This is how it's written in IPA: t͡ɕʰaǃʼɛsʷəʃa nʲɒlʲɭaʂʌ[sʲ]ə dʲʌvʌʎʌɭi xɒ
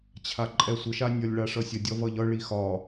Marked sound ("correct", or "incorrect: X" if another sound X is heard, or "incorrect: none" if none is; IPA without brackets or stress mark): correct